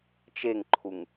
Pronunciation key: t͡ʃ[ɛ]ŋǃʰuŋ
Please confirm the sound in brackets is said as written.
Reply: no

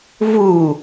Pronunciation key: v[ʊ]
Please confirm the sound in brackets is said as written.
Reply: no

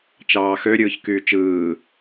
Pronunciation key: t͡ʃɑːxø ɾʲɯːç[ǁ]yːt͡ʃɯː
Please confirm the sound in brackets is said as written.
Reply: no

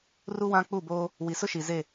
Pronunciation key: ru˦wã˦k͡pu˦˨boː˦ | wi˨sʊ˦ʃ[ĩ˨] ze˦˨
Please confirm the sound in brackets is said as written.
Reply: no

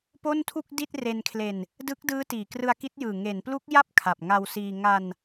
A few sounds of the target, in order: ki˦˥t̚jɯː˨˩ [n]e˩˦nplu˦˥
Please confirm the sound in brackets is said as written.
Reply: no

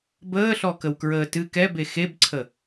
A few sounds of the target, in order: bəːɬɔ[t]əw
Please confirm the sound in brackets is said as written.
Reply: no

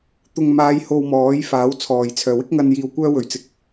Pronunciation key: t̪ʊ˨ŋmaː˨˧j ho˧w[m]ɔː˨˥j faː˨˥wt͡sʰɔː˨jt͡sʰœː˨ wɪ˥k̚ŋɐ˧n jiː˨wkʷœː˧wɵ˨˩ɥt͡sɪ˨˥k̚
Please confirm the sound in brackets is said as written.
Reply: yes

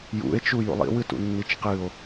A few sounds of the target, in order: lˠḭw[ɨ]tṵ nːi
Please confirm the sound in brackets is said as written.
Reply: yes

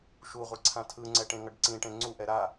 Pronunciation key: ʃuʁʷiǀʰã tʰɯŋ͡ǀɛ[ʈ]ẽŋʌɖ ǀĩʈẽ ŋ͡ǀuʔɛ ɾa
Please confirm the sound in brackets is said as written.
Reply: yes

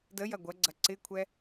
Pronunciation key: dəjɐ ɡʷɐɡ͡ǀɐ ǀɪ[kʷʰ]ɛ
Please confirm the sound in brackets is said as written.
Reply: yes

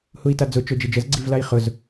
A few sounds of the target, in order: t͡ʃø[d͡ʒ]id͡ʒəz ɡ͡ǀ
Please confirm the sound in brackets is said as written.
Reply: yes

